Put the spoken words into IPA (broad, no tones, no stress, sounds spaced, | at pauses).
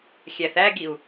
xʲ æ θ æ ɡ i u̯